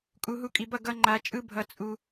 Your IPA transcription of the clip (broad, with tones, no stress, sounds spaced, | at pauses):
kʼ u˨ ɦ u˧ kʼ i˨ b ʌ˦˨ ɡ ʌ˧ ŋ͡ǃ a˨ t͡ʃʼ ɯ˦ bʱ ʌ˦ t͡sʼ u˦